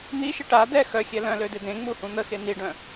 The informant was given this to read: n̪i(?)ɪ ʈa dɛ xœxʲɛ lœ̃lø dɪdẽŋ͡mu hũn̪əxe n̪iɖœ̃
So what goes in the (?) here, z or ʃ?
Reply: ʃ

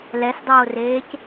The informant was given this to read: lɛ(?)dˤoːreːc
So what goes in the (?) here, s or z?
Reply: s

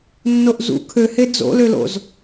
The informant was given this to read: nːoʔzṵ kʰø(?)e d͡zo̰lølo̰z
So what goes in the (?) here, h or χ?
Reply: h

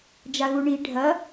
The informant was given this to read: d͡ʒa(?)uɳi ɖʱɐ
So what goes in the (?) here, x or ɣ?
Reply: ɣ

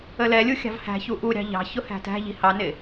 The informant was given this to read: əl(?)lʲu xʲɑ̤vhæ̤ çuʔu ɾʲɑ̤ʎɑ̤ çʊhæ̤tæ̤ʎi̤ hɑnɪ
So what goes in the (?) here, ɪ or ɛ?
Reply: ɛ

